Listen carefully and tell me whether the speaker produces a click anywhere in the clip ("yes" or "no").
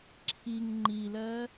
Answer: yes